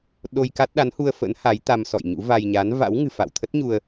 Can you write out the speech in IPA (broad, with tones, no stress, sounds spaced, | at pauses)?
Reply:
ɗ o˧ j k a˦˥ t̚ ɗ a˨˦ n h u˧ ə̯ f ə̰˧˥ n h a˨˦ j t̪ a˧ m s ɔ̰˧˨ j ɲ ṵ˧˥ v a˧ j ɲ a˨˦ n v a̰˧˥ w ŋ ɨ̤˨˩ f a̰˧˨ w t̪ʰ ə˦˥ t̚ ɲ u˧ ə̯